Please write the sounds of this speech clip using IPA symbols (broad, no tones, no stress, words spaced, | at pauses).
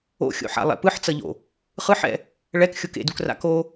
o̰xʲo̰ħa̰lˠɛ̰ pɯħt͡sʌʎo̰ | χɯħɛ̰ | ɭɛkxʲok ḛdukra̰ ko